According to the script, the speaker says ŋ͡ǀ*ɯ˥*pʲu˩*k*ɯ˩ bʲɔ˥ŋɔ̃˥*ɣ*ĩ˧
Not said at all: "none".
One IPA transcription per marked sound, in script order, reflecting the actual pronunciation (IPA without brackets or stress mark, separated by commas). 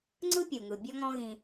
ɯ˥, ŋ, ɣ